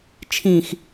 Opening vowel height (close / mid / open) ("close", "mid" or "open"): close